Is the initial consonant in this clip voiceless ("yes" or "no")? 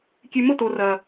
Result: yes